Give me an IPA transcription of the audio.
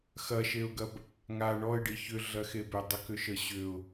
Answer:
x ɐ ʃ e ʊ̯ ɡ ɐ b | ŋ a ɳ ɔ ɪ̯ ɖ i ç ʏ ɮ ɐ x e b ʏ dˤ ə k ʏ ʃ ə ɕ ʏ ʊ̯

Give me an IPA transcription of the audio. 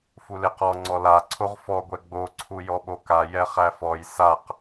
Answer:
f u l e q ɔ ŋ͡ǀ ɔ l a ǀʰ o ʁ f ɔ ɡʷ ɛ ɡ͡b o ǀʰ u j ɔ ɓ o k a j ɛ χ æ f ɔ j s a q

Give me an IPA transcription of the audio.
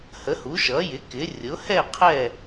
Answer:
h ə˩˥ h u˩˥ ʃ ʌ˩˥ j ɪ˩˥ k ɪ˩˥ rʲ ʊ˩˥ h ɛ˥˨ qʰ ɛ˥˨

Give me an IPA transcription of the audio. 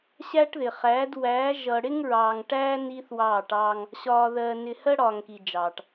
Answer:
ɕ æ˦ ʈ ð ɪ˨ χ æː˨˦ d w æː˨˦ ʒ ʌ˨ ɽ ɪ˦ ŋ ɹ ɑː˨ ŋ ʈ æː˦ n i˦ θ w ɑː˦˨ ʈ ɑː˦ ŋ | ɕ ɒː˨ ð ɜ˨ n ɪ˨ h ɜ˦ ɽ ɒː˨ ŋ k i˨ d͡ʒ ɑː˨ ʈ

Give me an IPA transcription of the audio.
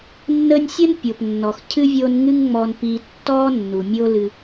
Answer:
nː ə˦ nʲ sʲ ə˥ n pʲ o˩ p nː ɔ˩ x cʰ ɨ˥ vʲ o˦ n ŋ ɨ˦ ŋ ŋ͡m ɔ˨ n p i˨ tː ɔ˥ nː u˩ mʲ o˦ l ɨ˨

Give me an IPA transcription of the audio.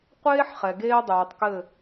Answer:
qʷ eː˦ ħ χ ɛ˨ ɡ eː˦ dˤ ʉː˨ tˤ k ɘ˦˨

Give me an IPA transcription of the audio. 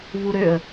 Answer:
v u ɾ ø ə̯

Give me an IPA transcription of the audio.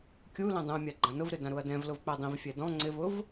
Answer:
kʲ u l ɛ̃ dˤ ũ ɐ̯ mʲ a ɡ͡ǃ ã n ʊ v ɾ ɪ d ã ɾ u ɐ̯ d ɛ̃ v l ʊ v k͡p ɛ dˤ ĩ v fʲ ɛ d ɔ̃ ŋ͡ǀ ɪ v ʊ v

